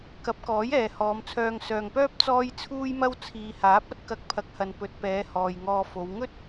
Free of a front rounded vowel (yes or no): no